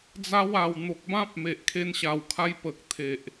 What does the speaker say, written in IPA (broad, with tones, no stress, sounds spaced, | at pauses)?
d͡z a˧ w a˨˩ w n̪ o˨ k̚ b ã˦ p̚ m e˨ ʔ kʰ e˧ n ɕ a˨˩ w kʰ a˧ j p ə˨ k̚ t̪ʰ e˨ ʔ